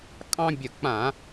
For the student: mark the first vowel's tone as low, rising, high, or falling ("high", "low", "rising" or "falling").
high